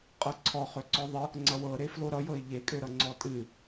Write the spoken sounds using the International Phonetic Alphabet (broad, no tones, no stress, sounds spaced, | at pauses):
qʼ ɤ ǀʰ ɔ χ ø ǀ ɔ ðˤ ə | ŋ͡ǀ ʌ w ɤ ɾ e f l o ɾ ʌ j ɤ ɪ̯ ʎ e kʼ ø ɾ ʌ ŋ͡ǀ ɔ tʼ ɨ